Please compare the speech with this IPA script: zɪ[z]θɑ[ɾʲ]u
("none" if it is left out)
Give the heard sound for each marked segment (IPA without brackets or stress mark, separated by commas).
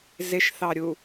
ʃ, ɾʲ